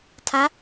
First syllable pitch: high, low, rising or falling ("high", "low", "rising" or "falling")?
rising